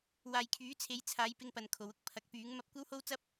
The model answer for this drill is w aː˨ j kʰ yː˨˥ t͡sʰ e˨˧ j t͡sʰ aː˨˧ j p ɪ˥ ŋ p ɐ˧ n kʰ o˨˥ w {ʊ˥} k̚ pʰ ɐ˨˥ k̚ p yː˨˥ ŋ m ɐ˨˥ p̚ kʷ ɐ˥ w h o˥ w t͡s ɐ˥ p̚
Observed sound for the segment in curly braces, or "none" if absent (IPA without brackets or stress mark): ʊ˥